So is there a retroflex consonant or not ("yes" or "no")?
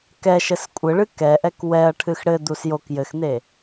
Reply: yes